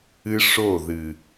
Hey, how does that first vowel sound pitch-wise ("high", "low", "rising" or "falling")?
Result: high